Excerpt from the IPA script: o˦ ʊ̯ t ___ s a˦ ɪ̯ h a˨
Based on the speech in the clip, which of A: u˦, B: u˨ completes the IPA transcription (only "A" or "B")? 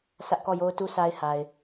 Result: A